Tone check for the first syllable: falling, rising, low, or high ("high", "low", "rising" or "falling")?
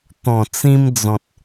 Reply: low